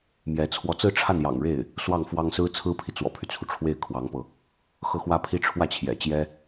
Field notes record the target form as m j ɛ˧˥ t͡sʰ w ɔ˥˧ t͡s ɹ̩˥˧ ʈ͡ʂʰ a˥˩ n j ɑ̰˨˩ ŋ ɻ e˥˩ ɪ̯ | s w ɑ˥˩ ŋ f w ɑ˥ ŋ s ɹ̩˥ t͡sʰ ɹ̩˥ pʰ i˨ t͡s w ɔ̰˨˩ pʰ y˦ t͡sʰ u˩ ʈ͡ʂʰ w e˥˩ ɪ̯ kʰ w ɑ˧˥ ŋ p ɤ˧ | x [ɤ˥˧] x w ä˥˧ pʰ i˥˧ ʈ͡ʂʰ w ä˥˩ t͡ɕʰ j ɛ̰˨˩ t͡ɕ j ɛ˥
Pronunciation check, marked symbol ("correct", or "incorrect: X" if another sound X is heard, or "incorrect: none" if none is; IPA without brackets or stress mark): correct